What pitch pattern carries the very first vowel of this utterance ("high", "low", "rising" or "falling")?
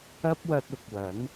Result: high